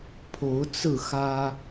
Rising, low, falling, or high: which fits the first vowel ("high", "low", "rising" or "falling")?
rising